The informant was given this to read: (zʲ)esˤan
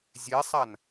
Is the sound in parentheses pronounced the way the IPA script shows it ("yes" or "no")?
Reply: yes